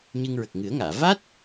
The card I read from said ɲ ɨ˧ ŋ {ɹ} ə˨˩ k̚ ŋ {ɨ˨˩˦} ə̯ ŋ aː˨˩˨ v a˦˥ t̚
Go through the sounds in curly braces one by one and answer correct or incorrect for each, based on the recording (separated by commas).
correct, correct